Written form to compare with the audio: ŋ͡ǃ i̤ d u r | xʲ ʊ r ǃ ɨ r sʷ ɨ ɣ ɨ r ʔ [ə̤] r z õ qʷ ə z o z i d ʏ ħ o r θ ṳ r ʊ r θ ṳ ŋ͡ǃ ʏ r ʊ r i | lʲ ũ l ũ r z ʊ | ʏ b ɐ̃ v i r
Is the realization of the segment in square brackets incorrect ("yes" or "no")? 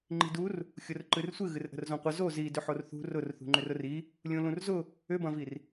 no